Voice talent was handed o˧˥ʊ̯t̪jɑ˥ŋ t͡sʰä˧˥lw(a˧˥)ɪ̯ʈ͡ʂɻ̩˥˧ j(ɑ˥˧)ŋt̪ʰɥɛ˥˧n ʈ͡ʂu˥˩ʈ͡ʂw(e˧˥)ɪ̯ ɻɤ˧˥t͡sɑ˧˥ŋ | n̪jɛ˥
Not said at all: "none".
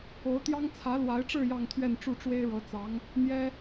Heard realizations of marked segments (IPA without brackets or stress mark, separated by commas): a˧˥, ɑ˥˧, e˥